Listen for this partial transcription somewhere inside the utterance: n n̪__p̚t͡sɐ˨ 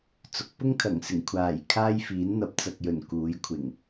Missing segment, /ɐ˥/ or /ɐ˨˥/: ɐ˨˥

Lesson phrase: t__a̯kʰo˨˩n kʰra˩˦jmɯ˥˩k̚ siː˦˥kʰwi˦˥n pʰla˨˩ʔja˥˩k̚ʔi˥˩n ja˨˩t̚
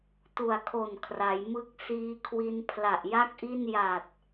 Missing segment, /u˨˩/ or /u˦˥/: u˨˩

